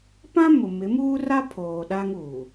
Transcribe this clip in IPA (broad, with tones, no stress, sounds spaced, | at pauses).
p ã˦ m ʊ˨ m ɪ˨˦ m uː˦ r a˦ pʰ oː˨ ɗ a˦ ŋ uː˨